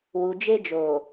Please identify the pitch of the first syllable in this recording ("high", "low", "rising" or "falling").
low